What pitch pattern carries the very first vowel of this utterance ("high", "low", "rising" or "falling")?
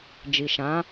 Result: low